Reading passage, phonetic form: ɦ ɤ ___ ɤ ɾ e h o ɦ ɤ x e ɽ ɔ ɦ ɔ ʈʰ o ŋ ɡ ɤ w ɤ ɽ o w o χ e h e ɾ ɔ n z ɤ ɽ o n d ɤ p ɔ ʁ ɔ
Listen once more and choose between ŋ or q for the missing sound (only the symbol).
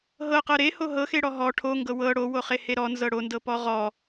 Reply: q